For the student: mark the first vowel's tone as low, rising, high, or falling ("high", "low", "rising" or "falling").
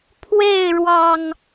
falling